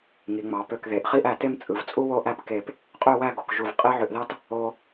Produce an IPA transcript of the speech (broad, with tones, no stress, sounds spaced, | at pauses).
ŋ i˩˧ ŋ͡m ɑ˩˧ p ø˧˩ k ð e˩˧ ʔ χ i˥˧ ʔ æ˧˩ t e˥˧ m t͡sʼ ɯ˩˧ v t͡sʼ u˥ w o˥˧ ʔ æ˥˧ p k e˧˩ p | qʼ ø˥˧ w æ˥˧ ɡ o˩˧ k ʒ u˧˩ v qʼ e˥ ʕ ø˧ ʔ ð ɑ˥ t | o˧